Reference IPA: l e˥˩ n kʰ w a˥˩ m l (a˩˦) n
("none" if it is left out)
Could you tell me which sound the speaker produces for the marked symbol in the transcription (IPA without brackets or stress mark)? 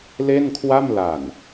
a˨˩